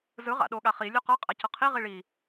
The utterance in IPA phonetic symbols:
z ɯ ʁ a̰ ɗ o ɠ a χ i lʲ o q ʌ qʼ a c ʌ qʰ i ʁ i ɭ i

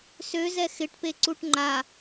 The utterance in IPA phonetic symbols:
s ø z ɛ x ɪ ʈ p e ǀ u ʈ ŋ͡ǃ a

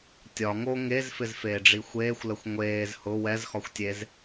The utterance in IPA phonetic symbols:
tʲ ɒ ŋ o ŋ e z f ɪ z f eː ɖ͡ʐ i xʷ eː xʷ l ə xʷ ŋʷ eː z h ʊ w ɛ z x ɒ xʷ tʲ e z

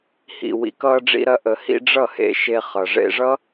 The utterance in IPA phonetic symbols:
h ḭ˨ w ḭ˨ k ʌː˧ ɖ͡ʐ ḭ˧ ɾ ɐ˦ ʔ ə˧ h ḭ˦ ɖ͡ʐ ʌ˦˨ h ḛ˧ ʃ e˧ χ ʌ˨ ʐ ḛ˧ ʐ ʌ˦

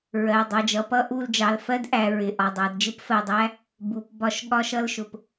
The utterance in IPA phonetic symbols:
ɹ ɜ˩˧˩ dˤ ʌ˩˧˩ d͡ʒ ʌ˩˧ p ʌ˧˥˧ ʔ u˦˨ l d͡ʒ ɑ˩˧˩ l f ɜ˥ d ʔ æ˩˧ ɹ ɪ˩˧˩ ʔ ɒ˩˧˩ dˤ æ˩˧ d d͡ʒ ɪ˥ p f ɜ˩˧˩ dˤ æ˧˥˧ | b u˩˧ p b ɒ˦˨ ʃ ɠ ɒ˥ ʃ ʌ˥ l ʃ ʊ˩˧ p

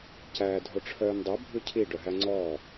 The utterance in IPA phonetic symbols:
c æː dʱ o ʈ͡ʂʰ œː n dˤ o bʱ ʉ cʰ i ɖ œ ɦ æ ŋ͡ǀ ɔː

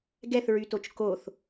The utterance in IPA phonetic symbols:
ɡ ɛ θ ɹ y t o t͡ʃ k o θ

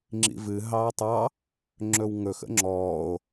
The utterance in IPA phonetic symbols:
ŋ͡ǁ ḭ v ɨ ɦ ɑː tˤ ɑ | ŋ͡ǁ ɵ w ŋ ɵ x ə̰ ŋ͡ǁ ɔː o̯

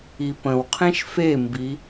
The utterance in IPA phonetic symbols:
i p ə̃ w qʰ ẽ ʃ f e m b i

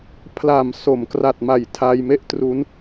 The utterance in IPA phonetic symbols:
pʰ l a˨˩ m s o˩˦ m k r a˨˩ t̚ m a˨˩ j tʰ a˧ j m e˥˩ ʔ t r u˦˥ n

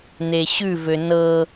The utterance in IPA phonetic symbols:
n̪ e ɕ ʉ v ø n ɤ

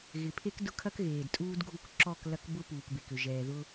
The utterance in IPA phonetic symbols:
ɣ ɪ˨ pʰ e˦ k d ʊ˦ kʰ ɐ˦ k ɣ eː˨ d tʼ uː˦ d ɡʱ u˦˨ k ǁ ɔ˦˨ k l ɐ˦ k b ʊ˦ p uː˨ k b e˨ k ʏ˨ ʒ ɛː˨ ð ʊ˦

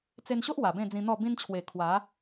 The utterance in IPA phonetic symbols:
t͡s e˧ n ɕ o˦ ʔ w a˨˩ b ẽ˥˧ d͡z ĩ˧ n̪ ɔ˥˧ b ĩ˧ n t͡ɕʰ w e˨˩ kʰ w a˨˦

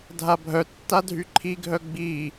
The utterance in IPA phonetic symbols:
dʱ a bʱ œ tː a dʱ y ǃʰ i ɡʱ œ ɡ͡b i

